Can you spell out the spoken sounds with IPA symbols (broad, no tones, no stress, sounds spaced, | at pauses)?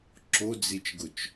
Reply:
ǁ o d͡z i t͡ʃ ɡ ʊ t͡ʃ